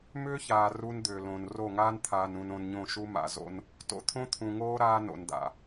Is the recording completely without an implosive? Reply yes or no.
yes